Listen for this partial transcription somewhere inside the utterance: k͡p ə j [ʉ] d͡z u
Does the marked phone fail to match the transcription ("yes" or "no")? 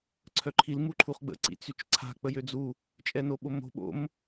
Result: yes